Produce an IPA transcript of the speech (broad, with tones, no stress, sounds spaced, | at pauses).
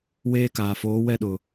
w eː˦ k aː˨ f oː˨˦ w ɛ˦ ɗ ʊ˨